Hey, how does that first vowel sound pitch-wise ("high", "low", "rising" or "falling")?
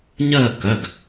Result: falling